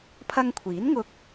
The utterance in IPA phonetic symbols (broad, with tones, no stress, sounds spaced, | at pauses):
pʰ ɐ˧ ŋ kʷʰ iː˨˥ n ŋ ʊ˧ k̚